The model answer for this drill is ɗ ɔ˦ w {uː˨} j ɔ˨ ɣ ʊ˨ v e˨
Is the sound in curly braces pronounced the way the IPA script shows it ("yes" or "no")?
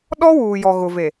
yes